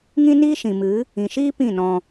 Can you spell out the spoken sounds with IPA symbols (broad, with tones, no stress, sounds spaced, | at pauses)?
ŋ ĩ˦ n iː˦ ʃ ĩ˨ m ɨ˨˦ | ĩ˨ ʃ iː˦ p ĩ˦˨ n ɔ̃˧